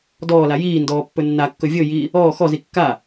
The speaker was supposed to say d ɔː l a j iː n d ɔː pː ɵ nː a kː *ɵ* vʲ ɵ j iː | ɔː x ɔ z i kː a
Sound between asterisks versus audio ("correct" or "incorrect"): correct